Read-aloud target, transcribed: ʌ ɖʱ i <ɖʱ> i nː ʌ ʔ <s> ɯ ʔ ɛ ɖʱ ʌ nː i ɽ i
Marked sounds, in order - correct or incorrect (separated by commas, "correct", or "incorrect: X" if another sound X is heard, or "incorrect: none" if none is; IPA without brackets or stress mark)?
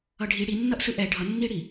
incorrect: ɽ, correct